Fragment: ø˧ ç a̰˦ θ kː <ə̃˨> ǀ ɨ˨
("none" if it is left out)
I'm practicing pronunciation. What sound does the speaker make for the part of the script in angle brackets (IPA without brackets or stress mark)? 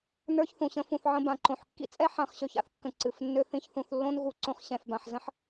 ə̃˨